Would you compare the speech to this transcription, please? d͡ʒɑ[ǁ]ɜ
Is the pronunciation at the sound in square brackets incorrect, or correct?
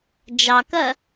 incorrect